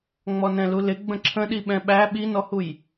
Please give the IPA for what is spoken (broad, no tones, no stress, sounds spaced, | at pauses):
ŋ͡m ɔ n ɛ̃ l u l ɪ ɡ͡b ə̃ ǁʰ ə̃ ɗ i ɓ ɛ̃ ɓ æ ɓ i n ɔ h u j